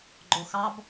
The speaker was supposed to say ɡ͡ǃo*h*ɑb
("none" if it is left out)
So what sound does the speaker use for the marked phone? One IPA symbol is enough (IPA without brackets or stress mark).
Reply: x